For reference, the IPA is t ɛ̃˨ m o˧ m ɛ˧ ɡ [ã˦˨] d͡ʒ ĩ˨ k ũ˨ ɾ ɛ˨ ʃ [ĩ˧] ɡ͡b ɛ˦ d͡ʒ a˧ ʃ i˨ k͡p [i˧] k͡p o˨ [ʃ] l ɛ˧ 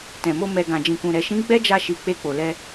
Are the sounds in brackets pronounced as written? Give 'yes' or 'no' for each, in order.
no, no, no, no

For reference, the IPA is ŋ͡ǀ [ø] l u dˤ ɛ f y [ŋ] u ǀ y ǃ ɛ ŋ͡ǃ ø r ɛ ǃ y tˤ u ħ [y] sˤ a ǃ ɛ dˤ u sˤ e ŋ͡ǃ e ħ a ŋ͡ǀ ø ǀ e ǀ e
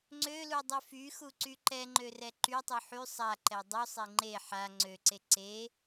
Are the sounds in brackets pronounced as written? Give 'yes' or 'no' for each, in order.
yes, no, yes

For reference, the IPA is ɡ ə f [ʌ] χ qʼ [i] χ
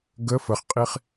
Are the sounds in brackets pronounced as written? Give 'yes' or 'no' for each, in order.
no, yes

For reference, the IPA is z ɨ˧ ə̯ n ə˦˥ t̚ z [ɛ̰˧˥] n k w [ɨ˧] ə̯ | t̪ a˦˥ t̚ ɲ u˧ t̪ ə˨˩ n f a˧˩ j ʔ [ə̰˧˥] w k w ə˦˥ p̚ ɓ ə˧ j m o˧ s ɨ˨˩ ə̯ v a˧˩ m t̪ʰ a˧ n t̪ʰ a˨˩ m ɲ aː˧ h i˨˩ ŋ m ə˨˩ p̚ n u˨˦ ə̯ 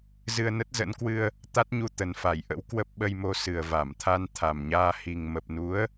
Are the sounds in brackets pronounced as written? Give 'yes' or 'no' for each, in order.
no, yes, yes

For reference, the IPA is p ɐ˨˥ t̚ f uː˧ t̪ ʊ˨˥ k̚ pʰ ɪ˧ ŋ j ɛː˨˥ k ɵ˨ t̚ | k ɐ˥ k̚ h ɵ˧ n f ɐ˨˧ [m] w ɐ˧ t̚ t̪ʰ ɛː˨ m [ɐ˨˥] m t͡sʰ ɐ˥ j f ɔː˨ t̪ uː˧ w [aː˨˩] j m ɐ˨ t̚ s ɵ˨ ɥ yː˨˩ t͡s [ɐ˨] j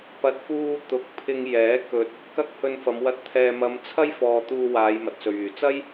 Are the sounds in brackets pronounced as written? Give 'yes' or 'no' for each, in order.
yes, no, no, no

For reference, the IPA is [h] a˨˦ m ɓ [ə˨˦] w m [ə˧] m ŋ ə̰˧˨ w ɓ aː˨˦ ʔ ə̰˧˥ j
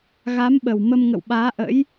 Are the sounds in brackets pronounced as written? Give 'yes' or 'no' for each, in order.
no, no, yes

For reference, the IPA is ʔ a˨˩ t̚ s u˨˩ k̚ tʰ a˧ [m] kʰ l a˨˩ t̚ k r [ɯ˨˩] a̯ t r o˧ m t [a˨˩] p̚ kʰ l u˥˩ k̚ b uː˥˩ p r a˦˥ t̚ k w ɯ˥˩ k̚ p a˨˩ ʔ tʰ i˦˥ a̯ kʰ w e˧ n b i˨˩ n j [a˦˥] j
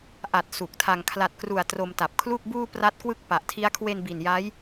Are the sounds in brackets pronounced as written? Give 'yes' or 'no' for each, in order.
no, no, yes, yes

